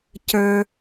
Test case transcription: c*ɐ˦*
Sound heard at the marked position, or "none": ə˞˦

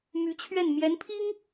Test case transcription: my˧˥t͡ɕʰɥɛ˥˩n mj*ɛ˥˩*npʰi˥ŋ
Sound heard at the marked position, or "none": ɛ˧˥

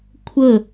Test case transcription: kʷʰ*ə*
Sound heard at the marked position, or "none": ə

